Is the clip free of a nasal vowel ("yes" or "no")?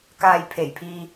yes